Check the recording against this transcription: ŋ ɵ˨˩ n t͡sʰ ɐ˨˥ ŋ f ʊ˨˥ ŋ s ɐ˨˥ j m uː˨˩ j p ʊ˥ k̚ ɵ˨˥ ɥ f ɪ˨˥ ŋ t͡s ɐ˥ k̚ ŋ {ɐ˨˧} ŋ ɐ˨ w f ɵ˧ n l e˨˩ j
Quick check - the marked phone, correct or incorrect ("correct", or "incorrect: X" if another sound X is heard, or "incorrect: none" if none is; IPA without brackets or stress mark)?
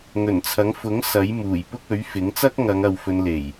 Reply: correct